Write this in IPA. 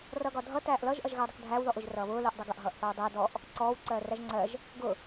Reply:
r ʌ ɡ ɒ dʱ ʌ t æː ʔ l ʌ ʒ ʔ ʌ ʒ ɣ æ w dˤ ʌ k dʱ æː w ð ɔ ʔ ʊ ʒ r ʌː β ʊː l ʊː ʔ dˤ ʌ ɡ ʌ ʔ ɦ ʌː ʔ θ ɒ w dˤ ʌː d ɔ ʔ | ǀ ɔː w ǀ ɜː r æ ʒ ŋ͡ǀ ɜ ʒ | ɡ ʊ

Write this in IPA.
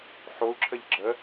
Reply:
ħ o u̯ ǁʰ ə ʎ ɡ͡ǁ ə

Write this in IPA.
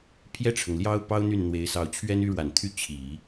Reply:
pʰ j ɛ˥˩ ʈ͡ʂʰ ɤ˩ ŋ l j ɑ˥ ʊ̯ p ɑ˥ ʊ̯ n̪ y˥˩ n n̪ w e˧˥ ɪ̯ s ɑ˧˥ ʊ̯ t͡ɕʰ ɥ ɛ˥ n y˥ ɻ w a˨˩ n t̪ʰ y˥˩ t͡ɕʰ i˨˩˦

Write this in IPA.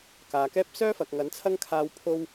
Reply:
k aː˨˧ k ɛː˥ p̚ s œː˥ f ɐ˨ k̚ ŋ ɐ˨˥ n t͡sʰ ɐ˥ ŋ kʰ aː˧ w pʰ o˥ w

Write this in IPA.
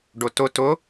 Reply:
ɖ ʊ t ʊ t ʊ

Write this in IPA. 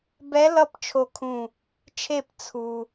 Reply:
b ɛ˧˥ l ʌ˥˨ p t͡ʃʰ o˧˩ kʰ ũ˧˩ | t͡ʃʰ e˧˩ p t͡sʰ u˩

